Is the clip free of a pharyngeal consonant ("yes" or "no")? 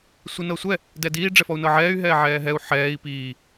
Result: no